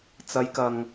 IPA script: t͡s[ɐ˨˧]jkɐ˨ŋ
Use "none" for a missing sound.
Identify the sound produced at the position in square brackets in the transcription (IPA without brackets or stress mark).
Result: ɐ˨˧